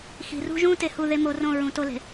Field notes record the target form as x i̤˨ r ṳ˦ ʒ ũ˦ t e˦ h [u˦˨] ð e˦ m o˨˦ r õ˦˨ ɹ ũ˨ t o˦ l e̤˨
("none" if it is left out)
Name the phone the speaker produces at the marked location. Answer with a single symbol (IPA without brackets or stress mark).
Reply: u˦˨